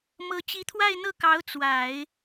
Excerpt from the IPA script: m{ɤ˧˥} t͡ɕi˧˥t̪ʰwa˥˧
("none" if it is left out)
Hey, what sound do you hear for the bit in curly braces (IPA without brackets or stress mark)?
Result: ɤ˧˥